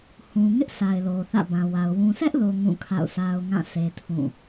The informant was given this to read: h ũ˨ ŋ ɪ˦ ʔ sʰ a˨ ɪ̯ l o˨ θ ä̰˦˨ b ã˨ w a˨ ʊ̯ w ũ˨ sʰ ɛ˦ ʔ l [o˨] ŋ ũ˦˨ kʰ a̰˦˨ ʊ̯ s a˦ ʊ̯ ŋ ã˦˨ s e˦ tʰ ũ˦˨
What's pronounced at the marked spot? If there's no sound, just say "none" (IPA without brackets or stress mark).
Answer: o˨